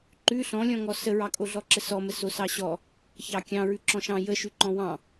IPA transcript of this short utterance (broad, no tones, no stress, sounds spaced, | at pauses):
ǃ ʉ ɬ ɔ̃ lʲ ɔ̃ ŋ ɔ s ə ɹ ɑ kʼ o ɮ ɔ ǁ ə s ɔ m ə s o s ɑ ɕ ɔ | ç ɑ kʲ ɑ̃ ɹ ʉ ǁ ɔ̃ ʃ ɑ̃ j ə ʃ ʉ ǃ ɔ̃ w ɑ̃